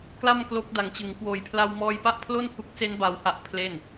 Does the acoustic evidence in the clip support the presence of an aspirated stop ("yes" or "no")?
yes